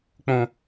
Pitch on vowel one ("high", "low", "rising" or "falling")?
low